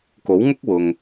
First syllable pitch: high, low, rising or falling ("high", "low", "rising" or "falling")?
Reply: rising